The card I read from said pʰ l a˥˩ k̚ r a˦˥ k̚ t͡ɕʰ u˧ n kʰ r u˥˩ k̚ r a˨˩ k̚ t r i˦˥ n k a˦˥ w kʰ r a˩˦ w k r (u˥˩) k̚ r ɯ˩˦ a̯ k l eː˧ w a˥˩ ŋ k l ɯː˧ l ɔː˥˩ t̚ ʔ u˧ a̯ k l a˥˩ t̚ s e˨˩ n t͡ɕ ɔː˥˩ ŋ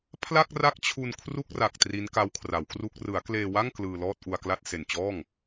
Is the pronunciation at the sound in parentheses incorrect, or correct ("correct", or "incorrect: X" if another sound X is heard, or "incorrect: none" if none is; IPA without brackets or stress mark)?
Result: correct